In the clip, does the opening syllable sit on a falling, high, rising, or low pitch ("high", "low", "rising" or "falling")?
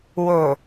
low